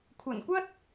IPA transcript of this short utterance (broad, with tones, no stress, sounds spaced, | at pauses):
kʷʰ ɐ˨˩ n kʷ ɐ˥ t̚